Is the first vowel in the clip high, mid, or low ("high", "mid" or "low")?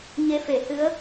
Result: mid